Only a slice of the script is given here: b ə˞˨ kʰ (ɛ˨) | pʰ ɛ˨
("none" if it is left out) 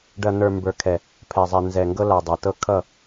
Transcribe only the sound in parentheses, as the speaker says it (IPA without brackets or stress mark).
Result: ɛ˨